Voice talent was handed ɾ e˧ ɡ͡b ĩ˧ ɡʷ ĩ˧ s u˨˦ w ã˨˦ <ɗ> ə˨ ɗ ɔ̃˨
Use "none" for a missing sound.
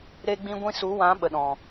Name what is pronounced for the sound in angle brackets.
ɓ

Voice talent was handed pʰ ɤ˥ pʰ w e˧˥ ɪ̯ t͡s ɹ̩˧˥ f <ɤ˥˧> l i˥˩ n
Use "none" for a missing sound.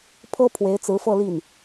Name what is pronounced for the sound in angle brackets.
ɤ˥˧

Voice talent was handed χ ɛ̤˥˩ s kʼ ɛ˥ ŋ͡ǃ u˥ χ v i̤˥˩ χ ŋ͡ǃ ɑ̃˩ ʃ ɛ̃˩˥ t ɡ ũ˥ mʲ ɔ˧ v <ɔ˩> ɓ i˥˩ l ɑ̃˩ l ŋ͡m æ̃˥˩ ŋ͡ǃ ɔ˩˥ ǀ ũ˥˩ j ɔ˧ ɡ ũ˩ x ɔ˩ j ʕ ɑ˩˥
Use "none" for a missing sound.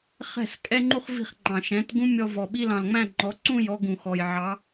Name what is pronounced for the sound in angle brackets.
ɔ˩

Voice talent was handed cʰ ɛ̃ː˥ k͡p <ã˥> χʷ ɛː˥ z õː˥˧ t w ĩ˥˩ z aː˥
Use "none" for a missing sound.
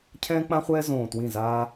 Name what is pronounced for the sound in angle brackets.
ã˥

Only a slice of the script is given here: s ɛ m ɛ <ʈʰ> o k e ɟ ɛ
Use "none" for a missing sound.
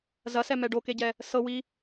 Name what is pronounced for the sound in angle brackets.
ɖ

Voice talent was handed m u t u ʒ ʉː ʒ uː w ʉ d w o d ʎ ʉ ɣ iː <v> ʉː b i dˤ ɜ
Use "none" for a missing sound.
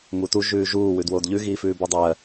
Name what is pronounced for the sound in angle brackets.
f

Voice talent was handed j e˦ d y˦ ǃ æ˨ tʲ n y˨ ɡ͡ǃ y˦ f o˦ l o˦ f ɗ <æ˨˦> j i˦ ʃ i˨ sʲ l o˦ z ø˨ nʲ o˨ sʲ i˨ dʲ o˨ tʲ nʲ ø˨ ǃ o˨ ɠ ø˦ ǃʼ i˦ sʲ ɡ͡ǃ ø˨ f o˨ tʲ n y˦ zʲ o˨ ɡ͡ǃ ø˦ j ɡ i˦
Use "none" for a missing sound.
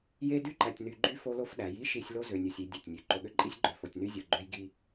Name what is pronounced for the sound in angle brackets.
æ˨˦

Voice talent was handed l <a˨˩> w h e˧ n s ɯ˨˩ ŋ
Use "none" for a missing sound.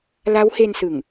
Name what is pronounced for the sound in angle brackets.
a˦˥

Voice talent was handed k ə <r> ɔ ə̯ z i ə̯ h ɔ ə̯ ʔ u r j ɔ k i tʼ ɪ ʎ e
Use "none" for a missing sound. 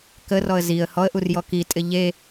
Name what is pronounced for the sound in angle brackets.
r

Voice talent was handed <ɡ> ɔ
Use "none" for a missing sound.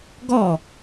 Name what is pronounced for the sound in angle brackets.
ɡ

